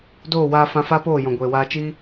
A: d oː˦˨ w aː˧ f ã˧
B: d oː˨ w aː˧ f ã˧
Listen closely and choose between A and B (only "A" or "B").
A